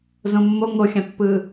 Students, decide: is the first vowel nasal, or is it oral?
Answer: nasal